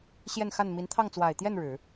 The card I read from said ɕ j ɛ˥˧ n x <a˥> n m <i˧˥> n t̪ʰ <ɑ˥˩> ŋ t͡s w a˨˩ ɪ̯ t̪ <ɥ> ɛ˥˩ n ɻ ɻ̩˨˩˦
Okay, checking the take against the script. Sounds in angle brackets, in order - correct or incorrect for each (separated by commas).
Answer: incorrect, correct, correct, incorrect